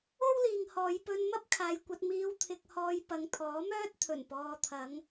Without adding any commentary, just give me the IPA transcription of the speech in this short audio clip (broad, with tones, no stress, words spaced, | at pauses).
o˥wliː˨ŋhɔː˨˧j pɵ˧n mɐ˥p̚kʰaː˨jkʷɐ˧t̚miː˧w t̪ʰɪ˧k̚hɔː˧j pɐ˨ŋt̪ʰɔː˨˥mœː˥t̚t̪ʰɵ˨˩n pɔː˨t̪ʰɐ˨˧ŋ